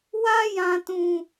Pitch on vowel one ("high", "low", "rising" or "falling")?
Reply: high